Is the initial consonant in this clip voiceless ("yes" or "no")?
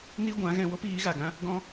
no